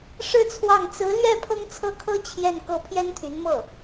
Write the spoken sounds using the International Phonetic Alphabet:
ʂ ɻ̩˥˧ t͡sʰ w ɑ˥˩ ŋ t͡s ɹ̩˧˥ l ɥ ɛ˥˩ pʰ ɤ˥ ŋ t͡sʰ ɤ˥˩ kʰ ɤ˥ t͡ɕʰ j ɛ˥˧ n k ɤ˥˩ pʰ j ɛ˥ n t̪ʰ y˧˥ n m ɤ˥˩

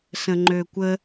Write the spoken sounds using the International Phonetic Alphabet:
s ə̃ ŋ͡ǃ ø kʷ ə

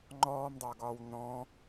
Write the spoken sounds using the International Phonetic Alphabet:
ŋ͡ǃ ɔː m dˤ ʌː ɡ ɒː w n ɔ̃

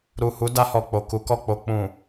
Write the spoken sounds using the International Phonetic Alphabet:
ɾ u˨ h u˨˦ d a˧ h ɔ˨ k͡p o˨ k u˨˦ k ɔ˦˨ k͡p o˧ k͡p ũ˨

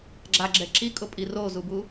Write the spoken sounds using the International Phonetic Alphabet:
ɡ͡ǁ a ɡ͡ǁ ɛ ǁ i kʼ ʊ pʼ i r o z u b u

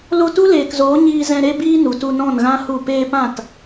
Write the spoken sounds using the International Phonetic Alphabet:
l o˧ t u˦ l eː˨ k z oː˨˦ ɲ iː˧ z ɛ̃˧ ɾ e˦ b iː˦ n u˨ t u˧ n ɔ̃˦˨ n ɣ ã˦ h u˦˨ p eː˧ p ã˦˨ t

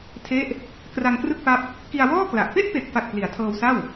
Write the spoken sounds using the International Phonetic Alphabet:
tʰ e˦˥ ʔ | k r a˧ ŋ k r ɯ˥˩ k̚ p a˦˥ p̚ | k i˧ a̯ w ɔː˥˩ k l a˨˩ ʔ p e˥˩ ʔ p e˨˩ k̚ f a˨˩ k̚ p l i˩˦ a̯ tʰ ɤː˧ w s a˥˩ w

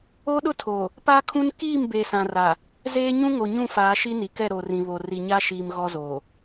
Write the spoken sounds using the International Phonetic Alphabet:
o˦ ɗ ʊ˦ tʰ o˨ | p aː˦ kʰ ũ˦ n k iː˦˨ m b eː˨ s ã˨ r a˨ | z eː˦ ɲ ũ˦ ŋ o˨ ɲ ũ˦˨ f aː˨˦ ʃ i˦ n i˨ k ɛ˦˨ ɾ o˨ r ĩ˨ β o˨ r i˨ ɲ a˦ ʃ iː˨ m ɣ ɔ˦ z oː˨

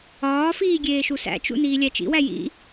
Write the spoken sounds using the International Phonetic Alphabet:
ɒː f iː ɡʲ eː ʃ u s æ̰ t͡ʃ ṵ n iː lʲ æ t͡ʃ ḭ w æ j ḭ

